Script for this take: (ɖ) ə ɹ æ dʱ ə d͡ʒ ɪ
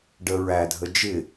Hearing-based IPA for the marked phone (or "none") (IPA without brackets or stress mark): ɖ